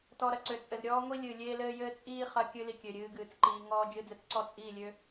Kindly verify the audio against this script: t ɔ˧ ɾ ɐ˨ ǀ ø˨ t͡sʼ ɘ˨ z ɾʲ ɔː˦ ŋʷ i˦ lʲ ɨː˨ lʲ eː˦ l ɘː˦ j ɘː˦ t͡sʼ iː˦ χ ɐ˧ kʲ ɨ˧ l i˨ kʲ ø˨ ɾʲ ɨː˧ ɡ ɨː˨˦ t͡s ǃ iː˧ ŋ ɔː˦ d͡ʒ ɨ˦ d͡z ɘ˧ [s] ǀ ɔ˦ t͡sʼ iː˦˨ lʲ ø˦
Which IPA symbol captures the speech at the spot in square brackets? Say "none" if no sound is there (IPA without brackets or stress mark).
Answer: t͡s